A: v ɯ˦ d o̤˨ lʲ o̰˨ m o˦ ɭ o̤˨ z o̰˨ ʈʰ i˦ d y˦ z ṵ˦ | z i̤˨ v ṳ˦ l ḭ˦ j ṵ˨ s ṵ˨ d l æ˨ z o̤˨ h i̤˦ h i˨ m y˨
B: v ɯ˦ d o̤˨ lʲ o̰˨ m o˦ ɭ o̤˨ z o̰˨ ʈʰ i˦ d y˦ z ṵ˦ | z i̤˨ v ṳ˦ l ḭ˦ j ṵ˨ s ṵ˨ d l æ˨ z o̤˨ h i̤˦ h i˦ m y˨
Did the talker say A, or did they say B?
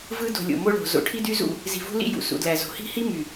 B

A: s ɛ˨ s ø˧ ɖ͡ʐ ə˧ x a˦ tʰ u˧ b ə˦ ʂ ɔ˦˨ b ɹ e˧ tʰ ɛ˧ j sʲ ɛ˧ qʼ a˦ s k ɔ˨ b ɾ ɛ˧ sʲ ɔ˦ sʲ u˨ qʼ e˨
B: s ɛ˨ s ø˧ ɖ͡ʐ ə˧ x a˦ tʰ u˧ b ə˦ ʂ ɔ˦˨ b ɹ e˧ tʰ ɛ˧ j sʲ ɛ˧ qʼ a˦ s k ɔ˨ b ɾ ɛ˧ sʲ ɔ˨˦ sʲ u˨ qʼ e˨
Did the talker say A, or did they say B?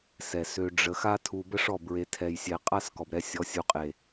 B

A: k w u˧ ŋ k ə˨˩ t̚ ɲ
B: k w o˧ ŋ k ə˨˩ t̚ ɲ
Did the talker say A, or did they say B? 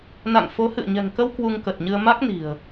A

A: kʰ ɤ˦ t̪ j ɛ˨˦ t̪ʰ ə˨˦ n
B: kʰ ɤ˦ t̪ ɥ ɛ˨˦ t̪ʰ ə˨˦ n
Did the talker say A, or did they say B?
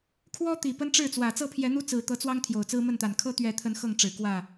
B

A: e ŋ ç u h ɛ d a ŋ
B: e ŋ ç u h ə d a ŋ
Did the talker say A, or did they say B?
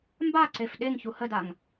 B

